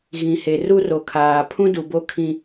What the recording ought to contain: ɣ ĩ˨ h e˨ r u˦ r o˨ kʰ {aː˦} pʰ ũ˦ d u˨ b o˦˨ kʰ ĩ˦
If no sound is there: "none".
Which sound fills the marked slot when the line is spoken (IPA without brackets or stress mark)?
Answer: aː˨